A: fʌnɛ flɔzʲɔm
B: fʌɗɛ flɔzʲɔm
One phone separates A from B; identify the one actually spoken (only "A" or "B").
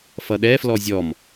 B